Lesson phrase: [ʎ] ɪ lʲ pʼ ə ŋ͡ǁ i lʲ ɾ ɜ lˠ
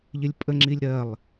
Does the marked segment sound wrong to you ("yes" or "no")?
no